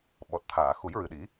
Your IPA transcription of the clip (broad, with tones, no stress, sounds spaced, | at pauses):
ɓ ɔ˨˩ t̚ t̪ʰ aː˨˩˨ x u˨˩˦ j ɹ ɨ˨˩ ɗ i˨˩˦